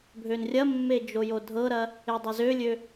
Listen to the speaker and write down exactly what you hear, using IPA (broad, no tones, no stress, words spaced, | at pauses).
bʱønrʲɐmːe d͡ʒojodʱɤɾɐ | edˤɐzølʲø